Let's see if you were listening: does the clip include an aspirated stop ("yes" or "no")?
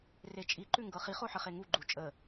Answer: no